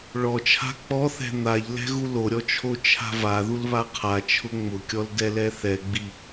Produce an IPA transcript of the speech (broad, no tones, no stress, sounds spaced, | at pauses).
ɭ ɔ t͡ʃʰ a̤ k͡p ɔ θ ɛ̤ n̪ a ʎ l ɛ̤ ɣ u l o ɾʲ ɔ t͡ʃʰ o t͡ʃʰ a̤ v a ð u l β a qʰ a t͡ʃʰ ʊ ŋ͡m ʊ kʲ ɔ l d ɛ l ɛ θ ɛ ɡ͡b i